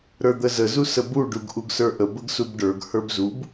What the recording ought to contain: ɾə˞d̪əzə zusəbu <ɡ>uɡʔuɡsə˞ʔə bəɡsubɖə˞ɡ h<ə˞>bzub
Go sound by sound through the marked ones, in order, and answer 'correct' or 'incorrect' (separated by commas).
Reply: incorrect, correct